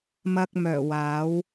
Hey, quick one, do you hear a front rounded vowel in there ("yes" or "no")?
yes